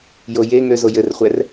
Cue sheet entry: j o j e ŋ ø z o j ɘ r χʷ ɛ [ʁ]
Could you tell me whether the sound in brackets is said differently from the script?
yes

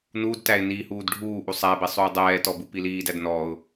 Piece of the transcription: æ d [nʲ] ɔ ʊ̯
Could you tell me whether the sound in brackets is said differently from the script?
yes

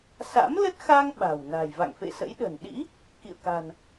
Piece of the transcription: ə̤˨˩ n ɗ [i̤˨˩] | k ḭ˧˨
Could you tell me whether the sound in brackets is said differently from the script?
yes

